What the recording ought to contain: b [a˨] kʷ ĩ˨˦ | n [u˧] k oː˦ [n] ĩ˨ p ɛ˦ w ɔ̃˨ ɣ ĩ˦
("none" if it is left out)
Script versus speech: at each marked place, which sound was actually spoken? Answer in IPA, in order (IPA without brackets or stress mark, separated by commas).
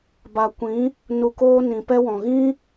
a˨, u˧, n